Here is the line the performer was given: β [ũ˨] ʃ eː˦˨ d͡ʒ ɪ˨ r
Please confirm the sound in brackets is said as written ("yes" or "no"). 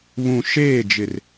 yes